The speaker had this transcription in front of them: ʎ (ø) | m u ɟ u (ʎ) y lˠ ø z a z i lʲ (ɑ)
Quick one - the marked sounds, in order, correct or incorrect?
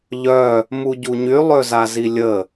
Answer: incorrect: œ, incorrect: ɲ, incorrect: ə

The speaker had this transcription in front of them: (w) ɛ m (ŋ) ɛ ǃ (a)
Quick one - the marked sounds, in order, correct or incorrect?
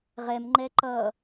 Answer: incorrect: ʁ, incorrect: ŋ͡ǃ, incorrect: ʌ

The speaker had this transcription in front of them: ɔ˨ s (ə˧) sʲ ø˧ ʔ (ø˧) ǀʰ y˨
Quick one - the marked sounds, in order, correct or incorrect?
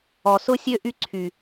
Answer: incorrect: ʊ˧, incorrect: y˧

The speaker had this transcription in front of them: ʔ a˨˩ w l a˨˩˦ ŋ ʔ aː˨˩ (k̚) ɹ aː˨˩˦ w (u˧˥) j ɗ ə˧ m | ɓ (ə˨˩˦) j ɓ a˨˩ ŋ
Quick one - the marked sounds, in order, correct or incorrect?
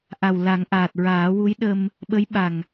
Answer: incorrect: t̚, correct, incorrect: ə˧˥

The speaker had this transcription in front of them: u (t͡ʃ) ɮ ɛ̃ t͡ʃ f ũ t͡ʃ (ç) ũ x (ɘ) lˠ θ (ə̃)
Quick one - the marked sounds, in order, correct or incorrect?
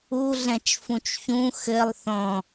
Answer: incorrect: none, correct, correct, incorrect: ɔ̃

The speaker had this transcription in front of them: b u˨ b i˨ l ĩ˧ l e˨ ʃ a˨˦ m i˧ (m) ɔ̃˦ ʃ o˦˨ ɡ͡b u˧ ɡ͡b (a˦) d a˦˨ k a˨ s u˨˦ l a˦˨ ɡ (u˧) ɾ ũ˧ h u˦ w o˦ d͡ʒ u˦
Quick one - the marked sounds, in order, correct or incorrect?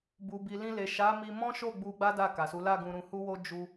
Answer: correct, correct, incorrect: ũ˧

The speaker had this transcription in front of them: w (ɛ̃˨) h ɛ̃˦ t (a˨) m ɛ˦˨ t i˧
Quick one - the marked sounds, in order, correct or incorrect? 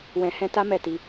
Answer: incorrect: ɛ̃˧, incorrect: a˦

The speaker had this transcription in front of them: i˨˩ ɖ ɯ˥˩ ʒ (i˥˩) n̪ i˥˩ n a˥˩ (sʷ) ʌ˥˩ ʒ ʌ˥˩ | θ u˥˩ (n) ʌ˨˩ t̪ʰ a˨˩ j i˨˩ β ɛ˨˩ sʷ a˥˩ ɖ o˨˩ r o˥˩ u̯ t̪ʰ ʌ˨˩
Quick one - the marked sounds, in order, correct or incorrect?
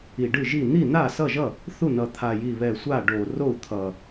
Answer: correct, incorrect: s, correct

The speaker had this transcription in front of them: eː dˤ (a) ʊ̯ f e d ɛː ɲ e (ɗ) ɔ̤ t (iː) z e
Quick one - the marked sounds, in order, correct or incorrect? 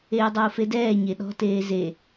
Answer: incorrect: ɑ, correct, incorrect: eː

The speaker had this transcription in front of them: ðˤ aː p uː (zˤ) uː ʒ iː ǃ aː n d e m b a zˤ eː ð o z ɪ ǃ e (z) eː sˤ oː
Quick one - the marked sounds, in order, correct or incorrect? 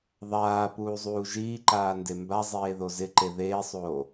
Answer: correct, incorrect: ð

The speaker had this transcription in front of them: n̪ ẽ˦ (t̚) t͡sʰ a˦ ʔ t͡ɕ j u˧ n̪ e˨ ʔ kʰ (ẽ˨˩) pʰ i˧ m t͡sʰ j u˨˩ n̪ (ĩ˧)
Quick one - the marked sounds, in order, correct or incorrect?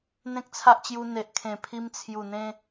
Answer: incorrect: k̚, correct, incorrect: ẽ˧

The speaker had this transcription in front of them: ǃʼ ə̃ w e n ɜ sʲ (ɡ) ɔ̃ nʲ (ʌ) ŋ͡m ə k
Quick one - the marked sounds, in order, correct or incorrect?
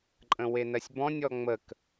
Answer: incorrect: b, incorrect: ɔ

